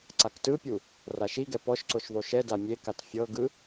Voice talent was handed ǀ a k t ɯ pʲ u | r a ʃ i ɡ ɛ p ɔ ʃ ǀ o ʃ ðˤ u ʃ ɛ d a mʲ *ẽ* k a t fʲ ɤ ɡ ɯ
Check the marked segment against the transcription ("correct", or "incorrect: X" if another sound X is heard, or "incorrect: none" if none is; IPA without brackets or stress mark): incorrect: e